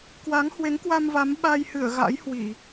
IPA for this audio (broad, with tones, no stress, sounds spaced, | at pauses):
k w a˨˦ ŋ h w e˨˦ ŋ k w a˧ m v a˨˦ m ɓ a˧ j h ɨ˧˩ ə̯ ɣ a̰˧˥ j h w i˧˩˨